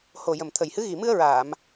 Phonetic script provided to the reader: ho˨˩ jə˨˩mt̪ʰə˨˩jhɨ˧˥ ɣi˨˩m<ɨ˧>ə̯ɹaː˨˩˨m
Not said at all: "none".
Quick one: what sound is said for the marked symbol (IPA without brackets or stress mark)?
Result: ɨ˧